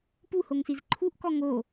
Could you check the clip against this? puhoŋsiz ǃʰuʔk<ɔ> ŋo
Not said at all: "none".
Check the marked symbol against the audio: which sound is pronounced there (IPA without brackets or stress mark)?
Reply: ɔ